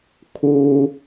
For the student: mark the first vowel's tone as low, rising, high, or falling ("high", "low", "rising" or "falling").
high